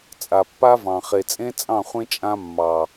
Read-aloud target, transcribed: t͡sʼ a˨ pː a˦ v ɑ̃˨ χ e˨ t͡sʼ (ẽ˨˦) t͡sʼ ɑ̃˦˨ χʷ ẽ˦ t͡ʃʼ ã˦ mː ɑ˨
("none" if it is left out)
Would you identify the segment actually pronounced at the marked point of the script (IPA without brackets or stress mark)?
ẽ˦